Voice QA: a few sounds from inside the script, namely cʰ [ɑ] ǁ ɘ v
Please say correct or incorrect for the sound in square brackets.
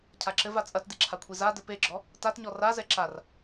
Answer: incorrect